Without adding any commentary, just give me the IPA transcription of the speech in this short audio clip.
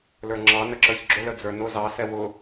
l ə˞ ŋ͡ǁ ɑ n ə ǁ ə˞ ç ɡ͡ǁ ʊ l ə d͡z ə˞ n ʊ z ɑ s ɛ w ʊ

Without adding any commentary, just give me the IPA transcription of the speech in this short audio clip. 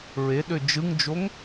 ɹ e ɗ ø d͡ʒ ɯ ŋ d͡ʒ o ŋ

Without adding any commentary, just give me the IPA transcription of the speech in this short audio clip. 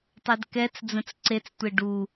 tˤ ɛ d k ɛ t͡s d͡z ə̃ t͡s ǀ e t͡s tʷ e ɖ u

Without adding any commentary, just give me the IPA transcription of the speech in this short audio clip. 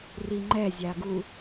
r i ŋ͡ǃ ɛ zʲ a ɡ u

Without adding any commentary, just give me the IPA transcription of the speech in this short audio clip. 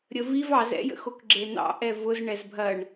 ɾʲ ə v i v ɑ z ɛ̰ j ə̰ x o k ɡ͡ǁ e n̪ ɑ̰ ʔ ɛ v ʊ z ɳ ɛ z bʱ ɐ ɳ

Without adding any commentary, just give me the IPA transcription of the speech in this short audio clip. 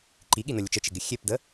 ǃ i ɠ i n ə lʲ ʊ t͡ʃ ə t͡ʃ ɪ ɡ ɪ xʲ e p d ə

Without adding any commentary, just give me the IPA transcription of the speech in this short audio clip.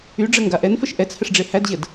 y ɖ͡ʐ ə ŋ ɡ a ʔ ɛ n f ə ʃ ʔ ɛ t͡s h ə ʂ ɖ͡ʐ e h æ d ʑ ə d

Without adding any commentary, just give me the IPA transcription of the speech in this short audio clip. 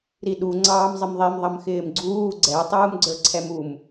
ɾ i ɗ u ŋ͡ǀ ɑː m zˤ ɪ m ðˤ i m ðˤ ʌ m x ɪː m ɡ͡ǀ uː ɡ͡ǀ ɛ tˤ uː m ɡ͡ǀ ə˞ ǀʰ ɛ m u m

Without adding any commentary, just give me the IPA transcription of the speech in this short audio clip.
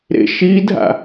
ɾ ḛ ʃ i dʱ a̰

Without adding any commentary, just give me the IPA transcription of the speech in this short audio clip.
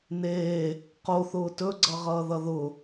n eː | q o θ ʊː t ɵ ɡ͡ǀ ʌ ʁ ʌː ð ʌ ð ʊ

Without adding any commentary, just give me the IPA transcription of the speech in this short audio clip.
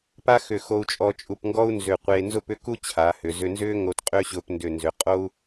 p a˥ x ʏ˧˩ x o˧ u̯ t͡ʃʼ ɔ˧ t͡ʃʼ u˧˩ p ŋ ɡ ɔ˥ u̯ n z ʏ˧˩ qʷ eː˧ n z ʊ˥˧ p ʏ˥ k u˥ t͡ɕʰ a˩˧ h ʏ˩˧ z ʏ˧ n z ʏː˥ ŋ o˧ t qʼ ʏː˥ ɕ ʊː˧ p n d ʏ˧˩ n z ʏ˩˧ qʼ o˥ u̯

